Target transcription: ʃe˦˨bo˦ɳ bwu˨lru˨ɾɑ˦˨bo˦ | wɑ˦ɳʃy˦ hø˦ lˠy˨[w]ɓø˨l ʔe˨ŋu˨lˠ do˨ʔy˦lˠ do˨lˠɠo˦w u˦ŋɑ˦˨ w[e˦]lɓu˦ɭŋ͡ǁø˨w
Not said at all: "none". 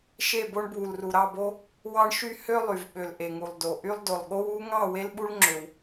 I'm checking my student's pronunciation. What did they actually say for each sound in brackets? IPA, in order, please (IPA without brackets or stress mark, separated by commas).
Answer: v, e˦